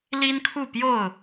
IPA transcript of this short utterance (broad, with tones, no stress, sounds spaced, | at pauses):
l i˦ n kʰ u˥˨ p j o˥˨ ʊ̯